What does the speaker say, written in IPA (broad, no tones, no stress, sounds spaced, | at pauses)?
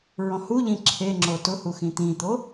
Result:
ɹ ɔ̃ h u ʎ ĩ ǁʰ e ŋ͡ǁ o t ʊ h u x ĩ t̪ ĩ t̪ o